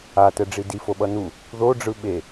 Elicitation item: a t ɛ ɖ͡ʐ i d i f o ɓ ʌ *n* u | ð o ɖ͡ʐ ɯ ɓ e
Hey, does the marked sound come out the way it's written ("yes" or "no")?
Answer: yes